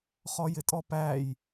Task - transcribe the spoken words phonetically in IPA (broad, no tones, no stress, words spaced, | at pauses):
χɔjɪtʼɔpæj